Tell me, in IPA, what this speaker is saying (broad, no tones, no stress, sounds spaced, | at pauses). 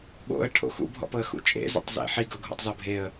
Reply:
ɓ o̰ ə̯ ʈʰ o̰ x ṵ bʱ ɔ̰ p ɤ ə̯ x ṵ t͡ʃʼ ḛ z ḛ tˤ z ḛ ħ i ɡ ɤ ɡʱ o̰ tˤ z ɔ bʱ e ə̯